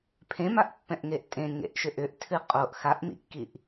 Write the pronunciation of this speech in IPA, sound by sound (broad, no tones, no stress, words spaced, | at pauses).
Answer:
pʰẽmaʔpːɛ̃ʔŋeʔ tʼẽŋḛʔʃʏ ʔʏʔtʰɨ qʼoʔ xaʔmḭkːiʔ